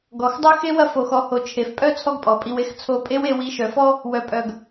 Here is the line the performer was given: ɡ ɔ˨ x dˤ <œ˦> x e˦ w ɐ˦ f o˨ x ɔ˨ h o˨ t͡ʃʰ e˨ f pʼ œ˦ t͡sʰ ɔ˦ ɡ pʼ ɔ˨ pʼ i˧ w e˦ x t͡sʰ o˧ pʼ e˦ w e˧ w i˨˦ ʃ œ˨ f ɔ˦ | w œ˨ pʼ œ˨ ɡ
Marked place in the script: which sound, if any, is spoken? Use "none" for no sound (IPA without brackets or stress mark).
œ˦